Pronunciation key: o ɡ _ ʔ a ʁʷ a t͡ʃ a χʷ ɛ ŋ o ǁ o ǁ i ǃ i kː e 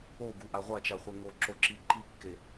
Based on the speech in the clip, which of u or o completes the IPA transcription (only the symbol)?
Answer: u